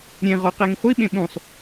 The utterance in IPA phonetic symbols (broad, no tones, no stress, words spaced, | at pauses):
ɾʲẽ ʁɔqeŋ χʷiɓẽ ɓũsˤ